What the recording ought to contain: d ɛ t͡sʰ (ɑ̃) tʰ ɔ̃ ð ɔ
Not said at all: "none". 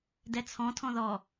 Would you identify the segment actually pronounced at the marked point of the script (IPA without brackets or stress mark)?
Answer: ɔ̃